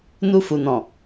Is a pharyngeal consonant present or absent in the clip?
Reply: absent